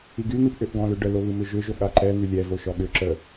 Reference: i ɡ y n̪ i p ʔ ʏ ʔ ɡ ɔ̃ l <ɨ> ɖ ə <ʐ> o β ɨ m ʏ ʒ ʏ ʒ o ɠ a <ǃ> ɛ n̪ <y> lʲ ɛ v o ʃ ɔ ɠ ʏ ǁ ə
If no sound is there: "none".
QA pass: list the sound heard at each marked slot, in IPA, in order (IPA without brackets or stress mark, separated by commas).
ʏ, l, ǃ, y